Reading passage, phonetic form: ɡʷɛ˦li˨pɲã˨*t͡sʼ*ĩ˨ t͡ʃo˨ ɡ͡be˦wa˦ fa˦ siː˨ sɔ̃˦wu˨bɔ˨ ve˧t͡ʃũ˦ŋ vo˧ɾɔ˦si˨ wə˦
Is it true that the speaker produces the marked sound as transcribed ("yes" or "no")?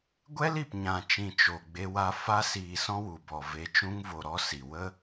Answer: no